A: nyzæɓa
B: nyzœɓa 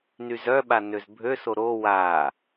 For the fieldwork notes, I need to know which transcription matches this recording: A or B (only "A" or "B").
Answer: B